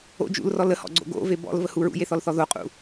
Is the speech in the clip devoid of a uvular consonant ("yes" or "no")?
no